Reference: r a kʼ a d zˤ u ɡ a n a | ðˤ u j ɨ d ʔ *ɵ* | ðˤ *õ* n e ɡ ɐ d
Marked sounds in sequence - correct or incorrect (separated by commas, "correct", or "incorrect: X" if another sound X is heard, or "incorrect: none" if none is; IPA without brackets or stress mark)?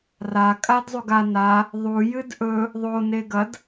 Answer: correct, incorrect: o